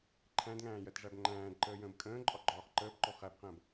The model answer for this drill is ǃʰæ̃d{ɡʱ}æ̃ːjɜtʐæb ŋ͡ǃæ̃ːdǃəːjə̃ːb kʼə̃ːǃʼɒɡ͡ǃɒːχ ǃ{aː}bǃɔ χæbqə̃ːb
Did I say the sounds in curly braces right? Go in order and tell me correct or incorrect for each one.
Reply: incorrect: ŋ, incorrect: əː

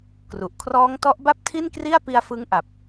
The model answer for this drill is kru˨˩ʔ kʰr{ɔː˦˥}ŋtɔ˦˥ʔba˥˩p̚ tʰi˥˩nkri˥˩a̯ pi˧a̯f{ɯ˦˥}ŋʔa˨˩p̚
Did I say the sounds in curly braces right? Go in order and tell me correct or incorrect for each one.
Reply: correct, correct

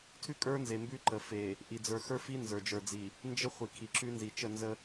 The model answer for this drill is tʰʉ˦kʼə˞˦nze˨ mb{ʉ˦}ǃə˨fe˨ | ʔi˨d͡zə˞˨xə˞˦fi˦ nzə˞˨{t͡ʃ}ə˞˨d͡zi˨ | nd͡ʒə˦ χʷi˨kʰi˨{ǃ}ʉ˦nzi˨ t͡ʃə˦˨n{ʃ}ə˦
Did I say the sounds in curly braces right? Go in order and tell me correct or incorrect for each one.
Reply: correct, incorrect: d͡ʒ, incorrect: ǁ, incorrect: z

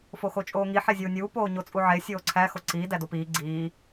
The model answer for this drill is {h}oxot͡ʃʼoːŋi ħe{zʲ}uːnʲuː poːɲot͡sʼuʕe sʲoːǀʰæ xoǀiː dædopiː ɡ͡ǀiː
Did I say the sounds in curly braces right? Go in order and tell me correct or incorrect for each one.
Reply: incorrect: f, correct

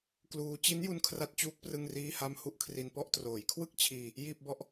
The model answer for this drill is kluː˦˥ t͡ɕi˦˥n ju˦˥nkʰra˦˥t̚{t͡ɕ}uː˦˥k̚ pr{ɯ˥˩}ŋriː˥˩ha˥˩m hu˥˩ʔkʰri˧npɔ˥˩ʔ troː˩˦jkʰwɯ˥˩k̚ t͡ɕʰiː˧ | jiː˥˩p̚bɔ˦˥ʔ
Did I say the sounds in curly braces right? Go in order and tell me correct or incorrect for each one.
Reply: correct, correct

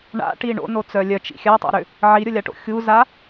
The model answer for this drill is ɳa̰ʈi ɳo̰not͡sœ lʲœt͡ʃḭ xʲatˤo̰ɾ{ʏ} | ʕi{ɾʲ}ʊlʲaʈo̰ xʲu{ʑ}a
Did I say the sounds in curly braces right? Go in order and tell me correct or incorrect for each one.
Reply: correct, correct, incorrect: z

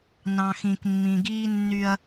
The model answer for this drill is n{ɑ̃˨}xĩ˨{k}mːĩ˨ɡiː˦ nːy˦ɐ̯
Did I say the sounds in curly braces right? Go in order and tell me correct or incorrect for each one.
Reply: correct, correct

